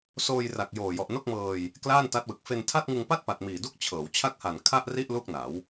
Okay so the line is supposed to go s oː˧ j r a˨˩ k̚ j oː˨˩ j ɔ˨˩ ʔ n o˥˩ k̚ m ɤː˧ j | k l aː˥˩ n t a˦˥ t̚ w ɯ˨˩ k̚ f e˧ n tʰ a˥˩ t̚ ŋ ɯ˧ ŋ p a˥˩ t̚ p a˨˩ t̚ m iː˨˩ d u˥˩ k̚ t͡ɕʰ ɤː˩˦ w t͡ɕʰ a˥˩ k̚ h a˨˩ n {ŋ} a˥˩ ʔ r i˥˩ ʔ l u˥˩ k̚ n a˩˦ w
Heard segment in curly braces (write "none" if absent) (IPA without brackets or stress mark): kʰ